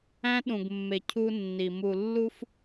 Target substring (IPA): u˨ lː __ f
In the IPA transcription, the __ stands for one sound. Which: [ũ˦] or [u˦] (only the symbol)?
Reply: u˦